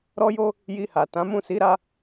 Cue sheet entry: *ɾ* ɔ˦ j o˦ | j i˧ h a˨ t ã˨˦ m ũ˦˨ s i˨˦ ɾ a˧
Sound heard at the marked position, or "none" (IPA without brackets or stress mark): ɾ